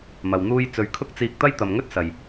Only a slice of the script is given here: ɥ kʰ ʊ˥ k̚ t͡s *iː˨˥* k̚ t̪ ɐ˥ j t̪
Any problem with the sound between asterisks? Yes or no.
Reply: yes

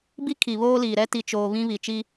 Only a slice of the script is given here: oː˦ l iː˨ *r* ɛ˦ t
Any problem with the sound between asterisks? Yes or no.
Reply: yes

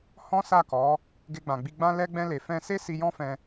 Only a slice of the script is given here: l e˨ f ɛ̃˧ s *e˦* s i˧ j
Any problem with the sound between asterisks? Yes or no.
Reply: no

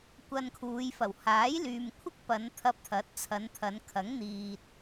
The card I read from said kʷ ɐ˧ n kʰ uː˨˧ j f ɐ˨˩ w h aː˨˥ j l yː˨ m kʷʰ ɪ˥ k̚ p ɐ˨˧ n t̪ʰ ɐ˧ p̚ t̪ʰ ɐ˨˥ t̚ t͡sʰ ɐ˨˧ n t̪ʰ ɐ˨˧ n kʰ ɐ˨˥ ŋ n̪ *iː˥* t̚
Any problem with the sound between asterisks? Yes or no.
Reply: yes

